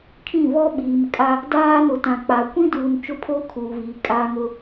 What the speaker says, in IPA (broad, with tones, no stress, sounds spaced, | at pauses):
kʰ ĩ˦˨ v ɔ˦ ɓ iː˨ m kʼ a˦ | d aː˦ n ʊ˨ t ã˨ k͡p a˨ kʷ ĩ˦ d uː˨ n t͡ʃ ʊ˦ pʰ oː˦ kʰ uː˨ v iː˨ kʼ aː˦ ŋ ʊ˦